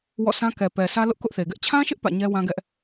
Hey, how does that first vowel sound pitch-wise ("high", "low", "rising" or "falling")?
falling